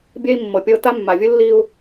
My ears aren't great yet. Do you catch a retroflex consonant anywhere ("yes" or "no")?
no